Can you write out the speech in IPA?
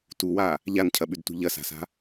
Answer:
t u w a | ʎ a n cʰ ɐ ɓ ʉ d t ṳ ʎ ɐ s a̤ s a̤

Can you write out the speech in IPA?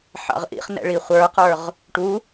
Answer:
ħ ɑ̰ ʁ ʔ ḭ χ n ɛ̰ ɭ i χʷ ə˞ q ə˞ ʁ | ʈ u

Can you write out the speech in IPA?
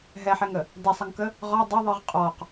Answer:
ɦ ɛ ħ ɛ ŋ ə | d ɛ sˤ ə ŋ k ə | ʁ ɒ dˤ ə ðˤ ɯ ʁ qʼ ɔ q

